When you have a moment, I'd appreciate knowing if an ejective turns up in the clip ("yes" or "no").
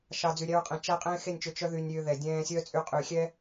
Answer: yes